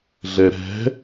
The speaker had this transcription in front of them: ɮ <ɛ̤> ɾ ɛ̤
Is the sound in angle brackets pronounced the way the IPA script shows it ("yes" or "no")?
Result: no